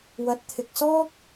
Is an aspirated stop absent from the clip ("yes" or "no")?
no